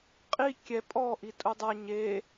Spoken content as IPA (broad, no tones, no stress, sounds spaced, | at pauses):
qʼ i kʲ ɛ pʼ ɔ ʔ i tʼ u dˤ a ɲ e